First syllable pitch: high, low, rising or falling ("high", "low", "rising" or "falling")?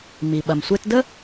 low